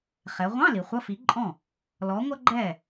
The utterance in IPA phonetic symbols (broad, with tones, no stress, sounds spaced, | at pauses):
χ ɛ˩˧ ʁʷ ɑ̃˧˥˧ l i˩˧ χʷ ʌ˧˥˧ f i˨˥ ǃʼ ɔ̃˥˩ | l ɔ˨˥ ŋʷ ʌ˥ ɡ͡ǃ ɛ˥˩